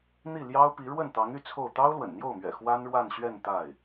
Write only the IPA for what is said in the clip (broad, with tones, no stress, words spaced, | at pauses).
n̪i˥˩ljɑ˥ʊ̯pi˧˥ ɻwə˥˩nt̪ɑ˧˥ŋy˥˧ t͡sʰo˥˩ʊ̯ t̪ɑ˥ʊ̯lwə̰˨˩nn̪jo˥˩ʊ̯mɥɛ̰˨˩ xwa˥nɻwa˥˧nɕɥɛ˥˧n t̪a˥˩ɪ̯